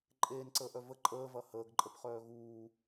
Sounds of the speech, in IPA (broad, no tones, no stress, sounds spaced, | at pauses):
ǃʼ eː n ǀ əː ʔ œ v ə ǃʼ əː v ɐ h əː ɡ ǃʼ ə p χ œː ɣ uː